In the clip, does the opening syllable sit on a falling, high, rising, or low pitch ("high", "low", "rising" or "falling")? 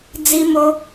high